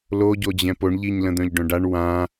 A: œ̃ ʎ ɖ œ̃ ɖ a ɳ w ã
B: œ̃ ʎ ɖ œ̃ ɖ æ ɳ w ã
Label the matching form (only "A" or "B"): A